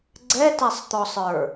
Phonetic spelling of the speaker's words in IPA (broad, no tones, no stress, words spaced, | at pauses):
ɡ͡ǀɛtɛsˤt̪ɔsˤə˞